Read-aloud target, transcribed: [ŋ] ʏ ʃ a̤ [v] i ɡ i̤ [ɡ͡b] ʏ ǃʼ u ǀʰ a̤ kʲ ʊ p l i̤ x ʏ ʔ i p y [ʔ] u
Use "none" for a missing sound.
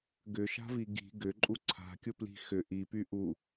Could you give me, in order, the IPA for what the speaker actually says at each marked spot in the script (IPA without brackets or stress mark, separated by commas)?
ɡ, v, ɡ, ʔ